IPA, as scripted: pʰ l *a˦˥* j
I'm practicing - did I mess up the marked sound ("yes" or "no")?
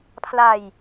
yes